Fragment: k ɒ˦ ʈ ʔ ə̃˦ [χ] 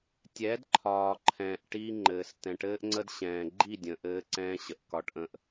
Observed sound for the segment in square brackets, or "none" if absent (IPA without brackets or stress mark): ʔ